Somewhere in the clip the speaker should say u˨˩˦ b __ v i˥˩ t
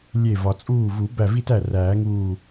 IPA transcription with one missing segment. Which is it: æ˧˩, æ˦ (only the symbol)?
æ˧˩